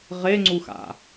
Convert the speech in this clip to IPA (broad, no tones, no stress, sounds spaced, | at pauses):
ʁ e ŋ͡ǀ u x a̰